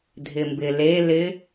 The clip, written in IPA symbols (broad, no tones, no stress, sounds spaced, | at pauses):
dʱ ɪ m b ɪ l e l ɪ